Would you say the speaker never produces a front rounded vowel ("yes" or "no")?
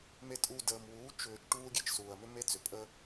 no